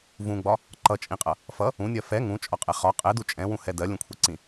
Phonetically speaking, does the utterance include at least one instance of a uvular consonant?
yes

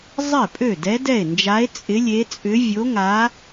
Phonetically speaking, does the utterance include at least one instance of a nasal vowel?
no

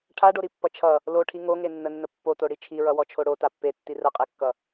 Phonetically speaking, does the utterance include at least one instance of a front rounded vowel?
no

